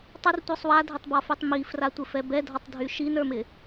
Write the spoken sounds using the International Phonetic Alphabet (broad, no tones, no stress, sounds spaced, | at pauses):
tˤ ɪ r tʷ ə˞ sˤ w a dʱ ɪ tˤ b ɒ f y tˤ m i f r a tʷ ɪ f ɛ b ɛ dʱ ɒ tˤ dʱ y ʃ i n ə˞ m ɪ